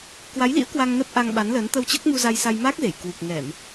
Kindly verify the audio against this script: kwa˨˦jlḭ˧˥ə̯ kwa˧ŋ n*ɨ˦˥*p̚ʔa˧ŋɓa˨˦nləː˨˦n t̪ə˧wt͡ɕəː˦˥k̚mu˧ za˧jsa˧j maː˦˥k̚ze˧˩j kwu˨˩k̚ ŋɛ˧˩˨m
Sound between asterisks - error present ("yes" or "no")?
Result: yes